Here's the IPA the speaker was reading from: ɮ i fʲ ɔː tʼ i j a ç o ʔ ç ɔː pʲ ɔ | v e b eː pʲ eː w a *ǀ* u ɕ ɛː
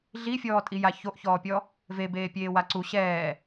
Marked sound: correct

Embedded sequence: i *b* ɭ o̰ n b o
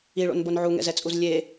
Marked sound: incorrect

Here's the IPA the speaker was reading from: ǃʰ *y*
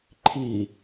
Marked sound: incorrect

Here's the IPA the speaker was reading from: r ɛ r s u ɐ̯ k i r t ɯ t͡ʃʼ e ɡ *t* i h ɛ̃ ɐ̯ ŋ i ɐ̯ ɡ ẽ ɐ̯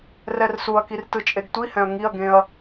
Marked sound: incorrect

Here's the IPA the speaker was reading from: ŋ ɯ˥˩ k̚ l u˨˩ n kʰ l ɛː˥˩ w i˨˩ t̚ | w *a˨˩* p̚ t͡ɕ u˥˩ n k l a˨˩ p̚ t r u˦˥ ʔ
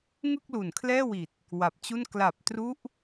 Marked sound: correct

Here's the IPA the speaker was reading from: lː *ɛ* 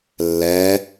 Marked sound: correct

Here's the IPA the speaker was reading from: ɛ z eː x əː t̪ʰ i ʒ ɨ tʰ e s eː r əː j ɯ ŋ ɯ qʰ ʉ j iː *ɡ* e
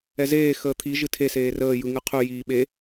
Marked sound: incorrect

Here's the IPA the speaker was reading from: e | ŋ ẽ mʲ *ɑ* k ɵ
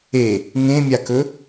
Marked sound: incorrect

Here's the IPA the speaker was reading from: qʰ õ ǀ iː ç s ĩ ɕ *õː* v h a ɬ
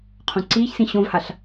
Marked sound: incorrect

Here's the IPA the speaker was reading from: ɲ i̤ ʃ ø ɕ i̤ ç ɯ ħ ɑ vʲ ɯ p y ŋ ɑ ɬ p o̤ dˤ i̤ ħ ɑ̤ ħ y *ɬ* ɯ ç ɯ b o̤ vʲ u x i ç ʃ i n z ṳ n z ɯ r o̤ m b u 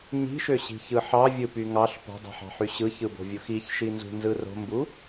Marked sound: incorrect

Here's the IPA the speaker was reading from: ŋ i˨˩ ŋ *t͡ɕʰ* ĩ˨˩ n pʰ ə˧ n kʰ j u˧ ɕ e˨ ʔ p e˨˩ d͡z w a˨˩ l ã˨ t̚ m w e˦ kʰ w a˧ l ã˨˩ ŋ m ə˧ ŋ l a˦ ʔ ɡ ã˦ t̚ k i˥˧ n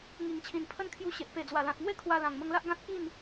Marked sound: correct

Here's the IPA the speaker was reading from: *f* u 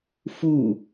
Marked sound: correct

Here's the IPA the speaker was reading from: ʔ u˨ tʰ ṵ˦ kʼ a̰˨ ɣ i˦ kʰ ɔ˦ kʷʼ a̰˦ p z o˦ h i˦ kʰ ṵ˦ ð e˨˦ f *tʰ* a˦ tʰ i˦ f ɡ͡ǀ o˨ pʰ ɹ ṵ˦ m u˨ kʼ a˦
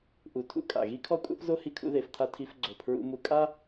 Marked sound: correct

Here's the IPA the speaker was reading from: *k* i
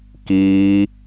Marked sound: correct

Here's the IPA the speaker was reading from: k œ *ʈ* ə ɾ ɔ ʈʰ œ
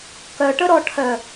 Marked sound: correct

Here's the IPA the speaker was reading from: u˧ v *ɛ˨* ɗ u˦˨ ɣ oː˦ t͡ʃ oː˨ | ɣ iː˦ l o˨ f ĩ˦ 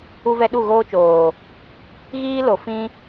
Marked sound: incorrect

